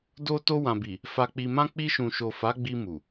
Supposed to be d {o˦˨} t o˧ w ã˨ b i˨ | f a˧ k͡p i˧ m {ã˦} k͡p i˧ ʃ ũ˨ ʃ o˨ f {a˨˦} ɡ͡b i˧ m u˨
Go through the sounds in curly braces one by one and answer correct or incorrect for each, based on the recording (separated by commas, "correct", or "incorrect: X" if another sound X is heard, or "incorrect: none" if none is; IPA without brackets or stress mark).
incorrect: o˧, correct, correct